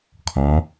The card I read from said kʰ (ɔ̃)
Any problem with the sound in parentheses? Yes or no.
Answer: no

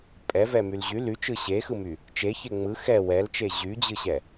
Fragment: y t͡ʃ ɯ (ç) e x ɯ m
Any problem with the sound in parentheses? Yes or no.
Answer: yes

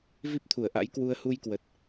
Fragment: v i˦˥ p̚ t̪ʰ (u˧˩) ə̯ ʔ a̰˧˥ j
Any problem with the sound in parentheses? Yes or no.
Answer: no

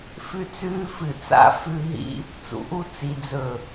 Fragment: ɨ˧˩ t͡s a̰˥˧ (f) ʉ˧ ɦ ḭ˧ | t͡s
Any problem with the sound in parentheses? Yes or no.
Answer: no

